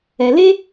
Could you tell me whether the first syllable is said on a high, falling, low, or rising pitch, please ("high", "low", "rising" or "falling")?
low